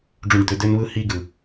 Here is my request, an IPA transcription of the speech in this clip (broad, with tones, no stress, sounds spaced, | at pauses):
ɖ͡ʐ ũ˨ ɖ d̪ ø˨ d ø˦ n β ɯ˦ h i˦ ɡ ɯ˨